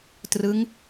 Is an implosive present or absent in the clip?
absent